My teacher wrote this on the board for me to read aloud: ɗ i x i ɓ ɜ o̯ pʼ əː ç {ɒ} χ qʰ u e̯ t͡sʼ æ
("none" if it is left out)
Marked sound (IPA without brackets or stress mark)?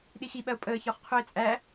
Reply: ɒ